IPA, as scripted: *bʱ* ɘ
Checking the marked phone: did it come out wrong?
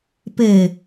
yes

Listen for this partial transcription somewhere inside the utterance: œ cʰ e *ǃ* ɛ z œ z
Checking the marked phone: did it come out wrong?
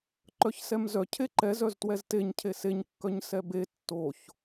no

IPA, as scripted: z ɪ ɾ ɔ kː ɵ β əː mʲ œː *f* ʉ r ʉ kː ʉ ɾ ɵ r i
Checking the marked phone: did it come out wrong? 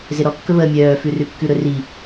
no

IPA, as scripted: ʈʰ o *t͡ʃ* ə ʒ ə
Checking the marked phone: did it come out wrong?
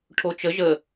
no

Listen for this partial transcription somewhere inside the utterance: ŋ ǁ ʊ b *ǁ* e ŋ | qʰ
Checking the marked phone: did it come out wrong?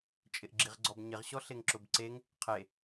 yes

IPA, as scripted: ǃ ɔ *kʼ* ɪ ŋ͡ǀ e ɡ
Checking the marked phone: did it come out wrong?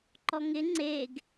yes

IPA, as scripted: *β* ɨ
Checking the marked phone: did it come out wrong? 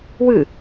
yes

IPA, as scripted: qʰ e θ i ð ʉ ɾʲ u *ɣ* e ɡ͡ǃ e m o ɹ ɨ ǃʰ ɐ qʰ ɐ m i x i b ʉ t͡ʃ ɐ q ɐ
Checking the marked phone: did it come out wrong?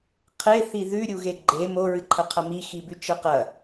no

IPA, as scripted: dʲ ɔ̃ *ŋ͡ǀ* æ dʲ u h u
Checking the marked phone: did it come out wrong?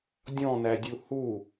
yes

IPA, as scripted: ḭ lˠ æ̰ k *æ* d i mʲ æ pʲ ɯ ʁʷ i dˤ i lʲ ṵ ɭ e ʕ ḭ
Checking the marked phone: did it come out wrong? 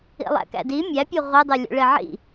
yes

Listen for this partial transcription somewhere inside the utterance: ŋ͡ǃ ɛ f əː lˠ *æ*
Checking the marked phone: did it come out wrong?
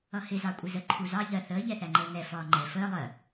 yes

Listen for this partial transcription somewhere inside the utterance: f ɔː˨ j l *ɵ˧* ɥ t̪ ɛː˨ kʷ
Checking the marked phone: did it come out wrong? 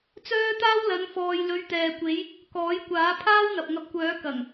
yes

